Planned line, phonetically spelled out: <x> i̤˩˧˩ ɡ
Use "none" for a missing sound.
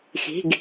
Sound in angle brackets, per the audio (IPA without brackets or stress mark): x